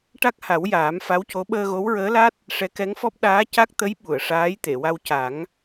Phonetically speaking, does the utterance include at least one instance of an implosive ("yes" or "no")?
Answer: yes